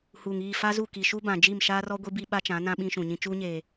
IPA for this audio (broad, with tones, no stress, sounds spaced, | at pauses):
h uː˨ ŋ iː˦˨ f a˦ z u˦˨ k i˨ ʃ u˦ b ã˨ d͡ʒ i˦˨ m ʃ aː˦ r ɔ˦ ɡʷ i˦ b i˦ ɓ a˦ t͡ʃ ã˨˦ n ã˦ ɓ ĩ˦ ʃ ũ˨ ɲ ĩ˦ t͡ʃ uː˦ ɲ eː˨